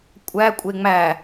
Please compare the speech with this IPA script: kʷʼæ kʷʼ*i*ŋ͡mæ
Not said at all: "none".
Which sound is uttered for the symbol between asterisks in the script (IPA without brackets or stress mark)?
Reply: e